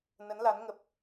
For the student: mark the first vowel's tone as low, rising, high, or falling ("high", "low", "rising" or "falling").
rising